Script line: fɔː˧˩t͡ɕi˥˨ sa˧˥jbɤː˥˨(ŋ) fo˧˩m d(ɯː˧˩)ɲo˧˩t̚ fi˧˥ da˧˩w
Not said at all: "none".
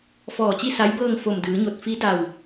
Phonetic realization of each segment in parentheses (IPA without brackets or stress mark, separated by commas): ŋ, ɯː˩˧